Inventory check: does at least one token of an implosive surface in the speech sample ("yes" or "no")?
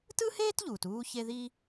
no